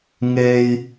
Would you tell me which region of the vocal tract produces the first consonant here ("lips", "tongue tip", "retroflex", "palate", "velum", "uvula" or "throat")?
velum